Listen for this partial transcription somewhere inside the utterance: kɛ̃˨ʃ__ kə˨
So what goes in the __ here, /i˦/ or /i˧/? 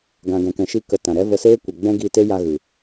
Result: i˧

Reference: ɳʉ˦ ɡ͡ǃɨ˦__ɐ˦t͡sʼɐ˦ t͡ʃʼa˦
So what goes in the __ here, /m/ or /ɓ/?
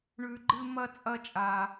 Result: m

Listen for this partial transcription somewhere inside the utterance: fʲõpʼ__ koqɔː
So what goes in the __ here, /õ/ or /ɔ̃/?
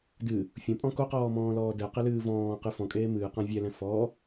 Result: ɔ̃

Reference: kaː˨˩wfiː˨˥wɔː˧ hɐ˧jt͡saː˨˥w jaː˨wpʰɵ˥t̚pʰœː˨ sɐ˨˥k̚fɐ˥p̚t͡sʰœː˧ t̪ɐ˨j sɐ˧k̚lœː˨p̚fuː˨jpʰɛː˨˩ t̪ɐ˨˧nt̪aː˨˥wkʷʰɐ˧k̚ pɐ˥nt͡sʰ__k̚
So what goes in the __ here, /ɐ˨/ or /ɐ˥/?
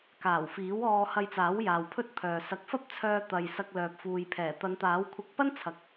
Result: ɐ˨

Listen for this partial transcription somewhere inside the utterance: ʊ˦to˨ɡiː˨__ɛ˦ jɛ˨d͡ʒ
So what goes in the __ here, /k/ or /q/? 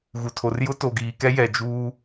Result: k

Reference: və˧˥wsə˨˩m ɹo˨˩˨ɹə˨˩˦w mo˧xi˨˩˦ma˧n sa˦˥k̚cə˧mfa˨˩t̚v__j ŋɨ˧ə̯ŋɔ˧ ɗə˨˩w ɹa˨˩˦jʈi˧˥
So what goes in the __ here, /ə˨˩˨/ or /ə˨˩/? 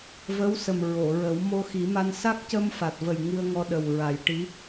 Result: ə˨˩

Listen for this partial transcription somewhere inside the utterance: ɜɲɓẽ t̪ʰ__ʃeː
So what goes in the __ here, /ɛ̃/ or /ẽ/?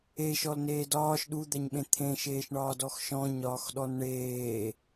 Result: ẽ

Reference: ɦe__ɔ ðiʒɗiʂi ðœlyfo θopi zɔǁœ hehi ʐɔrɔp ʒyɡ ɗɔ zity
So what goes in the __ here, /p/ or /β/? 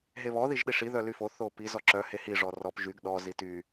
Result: β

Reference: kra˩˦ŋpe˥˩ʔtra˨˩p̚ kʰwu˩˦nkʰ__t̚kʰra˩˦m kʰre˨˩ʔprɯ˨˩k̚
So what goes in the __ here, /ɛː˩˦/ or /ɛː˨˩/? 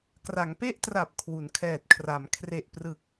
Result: ɛː˨˩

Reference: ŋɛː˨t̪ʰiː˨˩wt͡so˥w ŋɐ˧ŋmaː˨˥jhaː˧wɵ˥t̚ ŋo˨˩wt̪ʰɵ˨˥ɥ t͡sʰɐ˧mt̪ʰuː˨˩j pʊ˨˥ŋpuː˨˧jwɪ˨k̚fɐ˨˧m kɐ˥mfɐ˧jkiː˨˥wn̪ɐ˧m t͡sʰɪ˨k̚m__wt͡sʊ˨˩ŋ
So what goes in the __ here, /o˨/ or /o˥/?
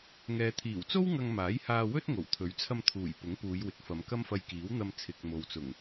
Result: o˨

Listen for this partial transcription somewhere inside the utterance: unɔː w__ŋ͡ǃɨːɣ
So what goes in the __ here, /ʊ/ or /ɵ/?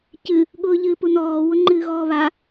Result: ʊ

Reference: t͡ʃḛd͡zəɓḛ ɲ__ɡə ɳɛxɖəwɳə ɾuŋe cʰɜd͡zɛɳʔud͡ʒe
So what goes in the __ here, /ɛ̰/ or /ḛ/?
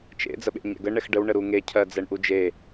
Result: ɛ̰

